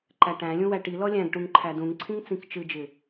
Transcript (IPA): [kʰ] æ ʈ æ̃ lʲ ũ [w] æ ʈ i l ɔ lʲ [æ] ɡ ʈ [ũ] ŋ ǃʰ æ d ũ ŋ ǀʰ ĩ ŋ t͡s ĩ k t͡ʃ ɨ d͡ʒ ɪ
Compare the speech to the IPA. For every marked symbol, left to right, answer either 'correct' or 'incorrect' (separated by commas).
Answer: incorrect, correct, incorrect, correct